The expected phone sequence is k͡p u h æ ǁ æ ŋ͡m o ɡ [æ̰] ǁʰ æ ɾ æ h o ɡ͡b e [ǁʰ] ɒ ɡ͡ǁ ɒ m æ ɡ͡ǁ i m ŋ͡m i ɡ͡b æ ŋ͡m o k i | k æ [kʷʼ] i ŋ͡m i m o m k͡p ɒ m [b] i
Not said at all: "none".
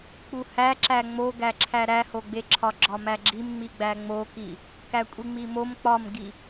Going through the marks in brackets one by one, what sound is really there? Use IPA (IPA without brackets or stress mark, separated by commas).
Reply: æ, ǁʰ, kʷʼ, ɡ